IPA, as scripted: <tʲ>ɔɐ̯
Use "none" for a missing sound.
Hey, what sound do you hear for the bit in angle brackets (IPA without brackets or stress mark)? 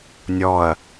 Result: nʲ